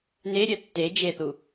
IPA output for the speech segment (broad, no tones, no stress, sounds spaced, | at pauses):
n e ɾʲ œ tː e d͡ʒ e θ u